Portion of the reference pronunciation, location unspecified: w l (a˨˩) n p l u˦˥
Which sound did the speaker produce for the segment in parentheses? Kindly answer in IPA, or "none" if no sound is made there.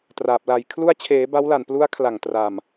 a˨˩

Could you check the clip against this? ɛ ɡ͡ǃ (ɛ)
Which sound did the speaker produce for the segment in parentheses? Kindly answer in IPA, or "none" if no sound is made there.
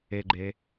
ɛ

